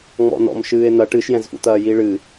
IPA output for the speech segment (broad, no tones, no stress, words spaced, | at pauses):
ŋ͡mɔ̰nɔ̰m ʃɨːe̯n̪ɐ ʈɨʃjɛ̃zfṵt̪ɐː jiɭɨ